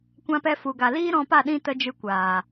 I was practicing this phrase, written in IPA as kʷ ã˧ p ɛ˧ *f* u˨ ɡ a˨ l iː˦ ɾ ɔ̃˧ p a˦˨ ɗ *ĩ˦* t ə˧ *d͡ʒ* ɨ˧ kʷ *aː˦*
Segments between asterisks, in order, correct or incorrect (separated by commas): correct, correct, correct, incorrect